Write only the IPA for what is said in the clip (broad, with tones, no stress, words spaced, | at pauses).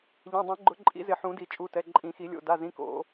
ʎẽ˩˧˩dˤɛ̃˨˩˦ɡ͡ǃʊ˨˩˦ ǃʼḭ˨˩˦ zɪ˨˩˦ ħũ˨˩˦di˨˩˦t͡ʃʼu˩˧˩tɛ˩˧˩ ǃʼĩ˨˩˦xi˨˩˦lʲo̰˩˧˩ da˩˧˩zĩ˩˧˩ ko̰˨˩˦